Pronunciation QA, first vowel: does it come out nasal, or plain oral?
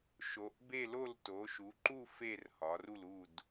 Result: oral